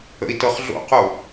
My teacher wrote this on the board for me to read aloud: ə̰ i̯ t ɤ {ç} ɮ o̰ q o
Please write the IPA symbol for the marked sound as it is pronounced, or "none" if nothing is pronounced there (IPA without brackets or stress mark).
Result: χ